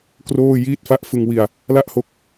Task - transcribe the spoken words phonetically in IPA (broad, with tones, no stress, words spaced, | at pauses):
kroː˥˩ jiː˦˥t̚fa˦˥ʔ fɯ˧ŋwi˧a̯ | la˥˩ʔho˦˥k̚